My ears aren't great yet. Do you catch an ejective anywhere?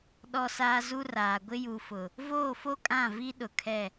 yes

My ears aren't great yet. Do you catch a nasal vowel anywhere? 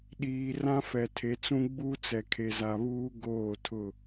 yes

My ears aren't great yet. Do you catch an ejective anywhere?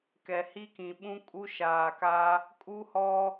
yes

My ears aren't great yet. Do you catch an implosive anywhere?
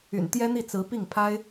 no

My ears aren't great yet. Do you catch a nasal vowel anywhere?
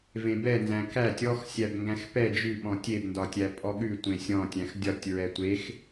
yes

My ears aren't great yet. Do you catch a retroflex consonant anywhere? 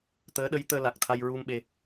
no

